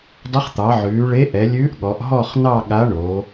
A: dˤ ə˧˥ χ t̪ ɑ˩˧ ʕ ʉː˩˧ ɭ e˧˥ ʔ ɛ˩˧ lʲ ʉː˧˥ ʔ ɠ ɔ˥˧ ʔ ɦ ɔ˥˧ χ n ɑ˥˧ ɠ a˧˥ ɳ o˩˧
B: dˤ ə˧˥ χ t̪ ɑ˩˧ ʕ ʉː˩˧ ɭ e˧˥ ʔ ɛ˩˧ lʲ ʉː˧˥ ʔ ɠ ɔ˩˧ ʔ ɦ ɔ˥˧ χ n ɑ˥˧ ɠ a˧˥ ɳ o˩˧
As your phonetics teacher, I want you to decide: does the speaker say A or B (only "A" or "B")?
B